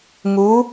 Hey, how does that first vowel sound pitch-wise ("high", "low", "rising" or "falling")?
rising